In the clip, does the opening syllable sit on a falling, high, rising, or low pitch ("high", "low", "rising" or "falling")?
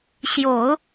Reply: low